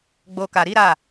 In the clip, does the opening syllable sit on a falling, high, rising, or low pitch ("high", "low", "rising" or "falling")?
low